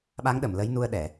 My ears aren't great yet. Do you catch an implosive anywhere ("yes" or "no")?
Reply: yes